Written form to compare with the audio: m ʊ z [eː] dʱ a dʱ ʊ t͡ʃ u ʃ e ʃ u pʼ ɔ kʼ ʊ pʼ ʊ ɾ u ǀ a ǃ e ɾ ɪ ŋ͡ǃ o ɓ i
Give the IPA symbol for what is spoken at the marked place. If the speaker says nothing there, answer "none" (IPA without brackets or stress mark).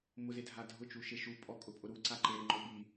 e